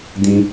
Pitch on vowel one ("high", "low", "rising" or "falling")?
high